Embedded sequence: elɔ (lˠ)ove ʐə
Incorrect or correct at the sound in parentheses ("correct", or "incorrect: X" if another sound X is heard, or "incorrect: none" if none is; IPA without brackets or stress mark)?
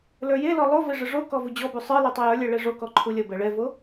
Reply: correct